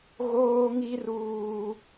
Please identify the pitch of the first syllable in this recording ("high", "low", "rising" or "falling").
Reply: high